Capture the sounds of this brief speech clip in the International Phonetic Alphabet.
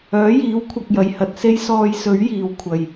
œː˨˥jiː˨˥wkʷʰɐ˨k̚jɐ˨˩j hɐ˨t̚se˥jsɔː˧j sɵ˨˥ɥjiː˨˩wkʷʰɐ˨˩j

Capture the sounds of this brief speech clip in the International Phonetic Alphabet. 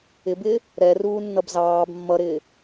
ɪbɪː | ɾɛ ruːnːʌbzɑːb mːʌɾɪː

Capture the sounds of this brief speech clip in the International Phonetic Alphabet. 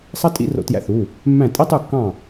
sˤɑ˥ tʼḭ˥ro̰˧ tjæ̰˧θu˩˧˩ | mːæ̃˥˨ tʼi˥tˤu˥˨kːɑ̃˥˨

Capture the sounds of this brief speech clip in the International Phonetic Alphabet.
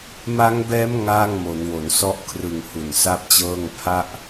ma˦˥ŋbɛː˦˥m ŋaː˥˩ŋmo˩˦nwo˩˦n sɔ˦˥ʔkʰrɯ˨˩ŋ hu˨˩nsa˥˩p̚t͡ɕɤː˥˩ŋ pʰa˦˥ʔ

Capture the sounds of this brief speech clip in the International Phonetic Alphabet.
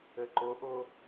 ɘǃʊʔʊ

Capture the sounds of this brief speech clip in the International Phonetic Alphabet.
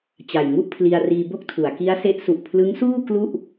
t͡ɕa˨˩jŋu˥˩ʔpʰli˧a̯ riː˧bo˥˩k̚tʰu˩˦a̯ ki˦˥a̯se˦˥ʔ su˨˩ʔpʰlɯ˦˥ŋsuː˥˩ klu˥˩ʔ

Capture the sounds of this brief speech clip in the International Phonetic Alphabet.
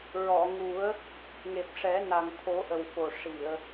ɹɔ˨˩˨ŋu˨˩˦ə̯ | ŋe˨˩p̚ʂɛ˨˩˦ na˨˩ŋt̪ʰo˨˩˦ʔə˨˩w fo˨˩ʂi˨˩˨ə̯

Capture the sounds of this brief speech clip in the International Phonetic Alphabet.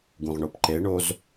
ɡũʁɳopǃeɳoz

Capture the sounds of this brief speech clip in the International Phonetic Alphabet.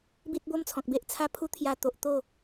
bi˦t̚bo˦mt͡sʰɔ̃˨k̚be˦ʔ t͡sʰa˦pʰu˦ t̪ʰja˧t̪o˨ʔ t̪o˥˧

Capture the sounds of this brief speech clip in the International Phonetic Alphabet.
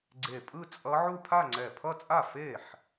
ɡ͡ǀe˧˩pʼɯ˥˧t͡sʼʌ˦˥ ʕu˥˧pʰa˥˧ŋ͡ǀɛ˧˩ pʰʌ˥˧t͡sʼa˥˩ fe˥˩ħ

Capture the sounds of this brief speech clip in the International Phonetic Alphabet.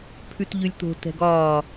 pʰʉtʎʉlʲt̪o̤ tɛ̤ɡɒː

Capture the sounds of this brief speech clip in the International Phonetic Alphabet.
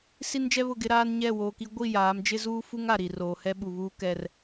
si˦nd͡ʒɛ˦βʊ˦˨ɡɪ˦ ɾaː˦nɲɛ˦˨woː˨ki˦ ɡʷi˦˨jaː˨˦md͡ʒɪ˦ zuː˦fu˦ŋ a˨ɾi˨roː˨hɛ˦ ɓu˨βuː˦kɛ˦r

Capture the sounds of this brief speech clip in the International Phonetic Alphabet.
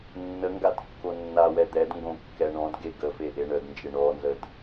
nːəŋɡad kːonːawɛ d̪ɛdŋɡõ kːɛɳɔ̃dɡe ɡəfe ʔeɳədnd͡ʒe ɳɔnzəd

